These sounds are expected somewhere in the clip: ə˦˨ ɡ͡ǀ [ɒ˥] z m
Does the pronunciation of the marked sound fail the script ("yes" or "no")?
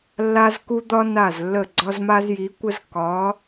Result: no